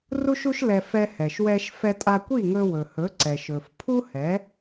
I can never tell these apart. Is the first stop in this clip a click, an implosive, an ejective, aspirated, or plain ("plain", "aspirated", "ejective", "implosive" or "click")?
ejective